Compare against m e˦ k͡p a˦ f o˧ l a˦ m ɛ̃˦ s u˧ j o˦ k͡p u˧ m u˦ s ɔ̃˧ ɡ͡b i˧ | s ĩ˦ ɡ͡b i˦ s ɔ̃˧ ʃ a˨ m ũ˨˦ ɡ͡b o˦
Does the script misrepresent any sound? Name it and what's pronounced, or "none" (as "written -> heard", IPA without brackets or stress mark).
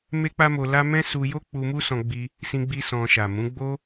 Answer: f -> m